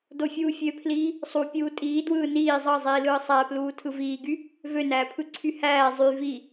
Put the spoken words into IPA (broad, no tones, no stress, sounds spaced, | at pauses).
d o fʲ uː fʲ ø pʰ l iː | sˤ u pʲ uː tʼ iː d w ɯː n iː zˤ ɑ zˤ iː l ɯː sˤ æ p l uː tʰ ɯ v iː ɡ y | v ø n æː pʰ ɯ ǀʰ y h æː zˤ y v i